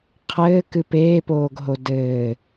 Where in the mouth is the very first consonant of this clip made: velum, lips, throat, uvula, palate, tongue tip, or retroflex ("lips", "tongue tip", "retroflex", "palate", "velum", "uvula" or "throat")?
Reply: uvula